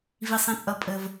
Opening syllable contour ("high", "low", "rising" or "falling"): low